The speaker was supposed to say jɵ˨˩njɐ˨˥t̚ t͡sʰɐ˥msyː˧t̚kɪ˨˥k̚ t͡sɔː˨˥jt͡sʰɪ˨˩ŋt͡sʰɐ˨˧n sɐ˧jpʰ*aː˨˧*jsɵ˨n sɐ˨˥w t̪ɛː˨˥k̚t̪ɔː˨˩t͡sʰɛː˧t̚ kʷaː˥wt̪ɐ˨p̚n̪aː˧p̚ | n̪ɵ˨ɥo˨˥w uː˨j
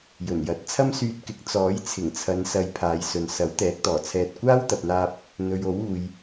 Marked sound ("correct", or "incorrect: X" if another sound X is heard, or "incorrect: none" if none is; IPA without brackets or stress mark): correct